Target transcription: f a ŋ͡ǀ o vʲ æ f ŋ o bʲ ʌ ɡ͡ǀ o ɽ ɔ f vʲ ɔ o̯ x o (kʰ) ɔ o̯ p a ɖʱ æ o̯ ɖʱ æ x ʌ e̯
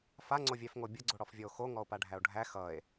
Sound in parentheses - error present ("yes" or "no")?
yes